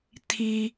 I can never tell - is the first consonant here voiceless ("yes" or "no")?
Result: yes